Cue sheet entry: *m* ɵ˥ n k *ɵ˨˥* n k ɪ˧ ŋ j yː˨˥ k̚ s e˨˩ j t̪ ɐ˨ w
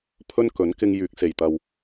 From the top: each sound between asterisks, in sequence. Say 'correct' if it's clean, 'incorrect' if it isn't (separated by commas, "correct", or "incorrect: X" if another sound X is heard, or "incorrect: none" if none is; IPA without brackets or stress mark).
incorrect: pʰ, correct